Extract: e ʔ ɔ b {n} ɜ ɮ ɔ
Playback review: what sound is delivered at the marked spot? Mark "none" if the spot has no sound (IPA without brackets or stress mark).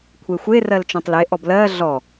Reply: l